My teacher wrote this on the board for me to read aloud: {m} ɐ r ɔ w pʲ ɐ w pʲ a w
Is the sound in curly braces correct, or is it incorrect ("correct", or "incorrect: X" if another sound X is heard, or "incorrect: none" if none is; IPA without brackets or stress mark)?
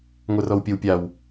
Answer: incorrect: ŋʷ